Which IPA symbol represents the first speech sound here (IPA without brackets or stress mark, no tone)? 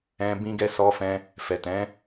ɛ̃